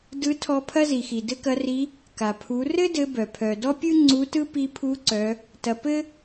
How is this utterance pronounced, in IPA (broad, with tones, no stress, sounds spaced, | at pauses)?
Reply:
d ɯ˧˥ tʰ ɔ˧ pʰ ɐ˥ z i˩ x i˩ d ɘ˥ k ɐ˧˥ r i˧˥ | k a˩ pʰ u˩˧ r ɘ˥ d ɘ˧˥ b œ˩ pʰ œ˩ d ɔ˥ pʲ ɯ˥ ŋ͡ǀ u˧˥ t ɯ˥ p i˧ pʰ u˧˥ ǀ œ˩˧ | t ɐ˩˧ p ɘ˥